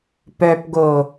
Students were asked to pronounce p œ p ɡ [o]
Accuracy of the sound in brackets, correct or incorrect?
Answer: correct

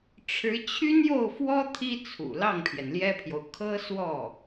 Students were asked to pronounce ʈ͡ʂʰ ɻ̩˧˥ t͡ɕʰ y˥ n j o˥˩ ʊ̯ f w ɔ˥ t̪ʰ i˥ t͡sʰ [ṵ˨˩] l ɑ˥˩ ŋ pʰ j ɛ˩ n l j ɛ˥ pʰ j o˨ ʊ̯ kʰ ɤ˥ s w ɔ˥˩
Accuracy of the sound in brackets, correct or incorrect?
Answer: correct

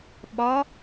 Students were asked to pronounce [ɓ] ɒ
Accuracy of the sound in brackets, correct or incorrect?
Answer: correct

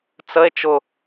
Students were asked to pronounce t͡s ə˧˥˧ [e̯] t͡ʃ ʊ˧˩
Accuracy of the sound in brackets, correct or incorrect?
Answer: correct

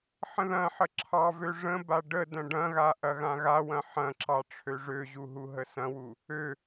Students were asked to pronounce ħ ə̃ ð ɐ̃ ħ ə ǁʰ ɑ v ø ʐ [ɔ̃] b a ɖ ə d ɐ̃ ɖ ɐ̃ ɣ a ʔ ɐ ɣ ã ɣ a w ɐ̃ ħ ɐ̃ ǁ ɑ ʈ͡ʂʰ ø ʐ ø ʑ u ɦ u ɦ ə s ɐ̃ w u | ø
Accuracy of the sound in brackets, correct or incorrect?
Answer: incorrect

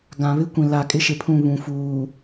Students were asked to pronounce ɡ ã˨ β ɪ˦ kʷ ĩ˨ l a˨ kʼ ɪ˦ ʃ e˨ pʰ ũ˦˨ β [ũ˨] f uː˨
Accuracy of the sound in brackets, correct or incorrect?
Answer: correct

